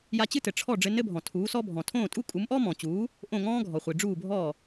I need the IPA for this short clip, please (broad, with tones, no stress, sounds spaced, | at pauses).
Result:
j a˧ t͡ɕ ɨ˥ t ɘ˩ ʈ͡ʂʰ ɔ˥˩ ɖ͡ʐ ɘ˧ n ɘ˥ bʱ ɔ̃˩ tʰ uː˩˥ s ɔ˥ bʱ ɔ̃˩ tʰ õː˥˩ tʼ u˥ kʼ u˩˥ m ʔ ɔ˥ m ɔ̃ː˩ t͡ɕ uː˩˥ | ʔ õ˥˩ ŋ ɔ̃ː˥ ɡʱ ɔ˩ χʷ i˩ ɖ͡ʐ uː˥˩ bʱ ɔ˥˩